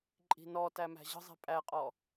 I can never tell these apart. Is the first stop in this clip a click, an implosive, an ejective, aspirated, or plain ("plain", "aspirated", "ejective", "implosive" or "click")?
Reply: click